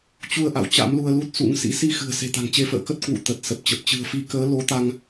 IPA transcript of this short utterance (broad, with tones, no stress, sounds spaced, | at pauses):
t͡ɕ u˧ ə̯ ʔ a̰˧˨ w t͡ɕ a̰˧˥ m l u˧ ə̯ l u˦˥ t̚ s ṵ˧˥ ŋ s ḭ˧˥ s i˧ x ɨ̤˨˩ ə̯ s e̤˨˩ t̪ a̤˨˩ ŋ t͡ɕ e˨˦ f ə̰ː˧˨ k ə˦˥ t̚ k w ṵ˧˨ t̪ ə˨˩ t̚ s ə˨˩ p̚ t͡ɕ ə˨˩ p̚ t͡ɕ ɨ̤˨˩ ə̯ f i˨˦ k əː˨˦ l o˨˦ t̪ a˧ ŋ